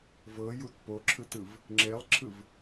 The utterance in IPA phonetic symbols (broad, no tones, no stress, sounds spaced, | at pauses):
v ɤ j u t p o ǁʰ ɯ t ɯ v | ŋ͡ǁ e lˠ ǁʰ ɯ v